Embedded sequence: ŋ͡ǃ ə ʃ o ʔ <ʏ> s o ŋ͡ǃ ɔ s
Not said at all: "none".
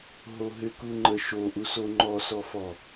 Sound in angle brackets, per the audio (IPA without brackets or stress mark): u